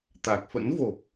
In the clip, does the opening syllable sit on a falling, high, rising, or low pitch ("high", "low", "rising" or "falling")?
low